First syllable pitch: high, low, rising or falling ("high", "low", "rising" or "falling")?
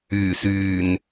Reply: low